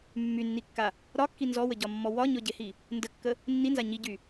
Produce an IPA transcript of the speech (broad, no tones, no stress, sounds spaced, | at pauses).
mː y nː i kː a | ɾ ɒ kː i n z ɔ w ə ɟ ɒ mː ɔ w ɒ ɲ ɔ ɟ e h i | n d ə kː ə | nː i n z a ɲ i ɟ y